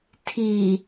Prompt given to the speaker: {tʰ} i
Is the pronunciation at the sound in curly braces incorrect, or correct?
correct